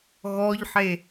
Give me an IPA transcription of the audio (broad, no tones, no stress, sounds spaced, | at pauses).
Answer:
ɣ ɔ ʎ ħ e